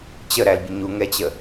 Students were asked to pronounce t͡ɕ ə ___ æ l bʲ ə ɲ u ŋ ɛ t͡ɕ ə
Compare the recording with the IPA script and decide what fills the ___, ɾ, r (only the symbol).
ɾ